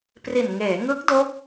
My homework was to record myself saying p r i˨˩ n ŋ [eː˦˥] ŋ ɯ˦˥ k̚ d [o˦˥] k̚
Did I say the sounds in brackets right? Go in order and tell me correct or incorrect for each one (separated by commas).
incorrect, correct